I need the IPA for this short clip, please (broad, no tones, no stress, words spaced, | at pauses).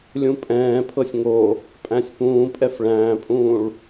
lʲũpʼɛ̃ːpʰɤsʲ ŋo | pʼæ̃sʲpũːpʼɛf ɭæ̃ːpʼũːɭ